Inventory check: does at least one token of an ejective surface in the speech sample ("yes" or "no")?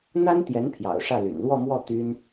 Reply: no